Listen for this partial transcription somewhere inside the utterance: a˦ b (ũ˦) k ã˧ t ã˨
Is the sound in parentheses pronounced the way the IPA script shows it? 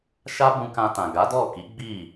no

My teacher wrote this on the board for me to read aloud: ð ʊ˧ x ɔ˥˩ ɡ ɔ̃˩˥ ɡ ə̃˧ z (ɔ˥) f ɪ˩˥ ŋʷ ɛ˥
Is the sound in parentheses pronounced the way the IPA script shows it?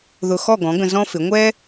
no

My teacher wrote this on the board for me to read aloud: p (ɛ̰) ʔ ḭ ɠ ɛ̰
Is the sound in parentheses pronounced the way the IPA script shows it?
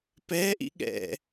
no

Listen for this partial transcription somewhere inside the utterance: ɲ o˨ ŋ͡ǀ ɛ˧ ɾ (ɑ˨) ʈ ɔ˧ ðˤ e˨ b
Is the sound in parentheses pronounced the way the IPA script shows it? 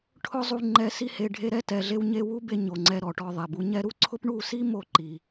no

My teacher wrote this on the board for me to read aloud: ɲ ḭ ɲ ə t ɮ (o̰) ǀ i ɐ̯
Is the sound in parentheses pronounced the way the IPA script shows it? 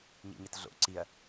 yes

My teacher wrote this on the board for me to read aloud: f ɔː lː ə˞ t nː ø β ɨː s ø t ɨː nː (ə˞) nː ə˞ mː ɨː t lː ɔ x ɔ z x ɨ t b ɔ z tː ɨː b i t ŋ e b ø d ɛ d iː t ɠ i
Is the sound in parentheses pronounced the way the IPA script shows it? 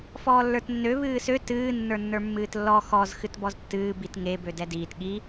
yes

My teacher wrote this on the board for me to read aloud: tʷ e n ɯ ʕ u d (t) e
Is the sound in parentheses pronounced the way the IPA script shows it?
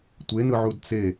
no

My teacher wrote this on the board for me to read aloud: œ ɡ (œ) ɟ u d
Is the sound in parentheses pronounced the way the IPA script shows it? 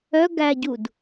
no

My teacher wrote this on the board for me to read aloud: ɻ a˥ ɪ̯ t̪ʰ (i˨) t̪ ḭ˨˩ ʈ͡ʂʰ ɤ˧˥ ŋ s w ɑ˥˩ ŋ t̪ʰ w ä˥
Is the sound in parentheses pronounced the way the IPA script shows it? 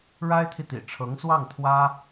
yes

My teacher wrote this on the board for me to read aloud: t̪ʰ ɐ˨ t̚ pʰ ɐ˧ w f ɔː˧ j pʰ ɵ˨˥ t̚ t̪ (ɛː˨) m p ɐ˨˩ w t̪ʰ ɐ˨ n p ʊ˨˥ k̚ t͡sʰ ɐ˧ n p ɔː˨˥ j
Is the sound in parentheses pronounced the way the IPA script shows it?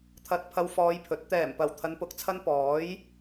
no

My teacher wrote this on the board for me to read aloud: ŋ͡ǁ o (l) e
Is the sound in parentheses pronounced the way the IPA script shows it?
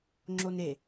no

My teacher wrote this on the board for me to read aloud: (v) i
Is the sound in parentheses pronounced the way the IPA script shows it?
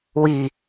no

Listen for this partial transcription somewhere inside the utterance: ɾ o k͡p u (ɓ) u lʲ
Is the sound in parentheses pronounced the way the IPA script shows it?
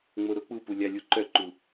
no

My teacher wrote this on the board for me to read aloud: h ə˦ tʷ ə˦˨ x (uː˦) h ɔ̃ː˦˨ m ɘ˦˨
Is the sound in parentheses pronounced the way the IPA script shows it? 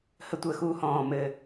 yes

